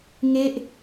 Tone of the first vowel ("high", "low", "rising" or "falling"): falling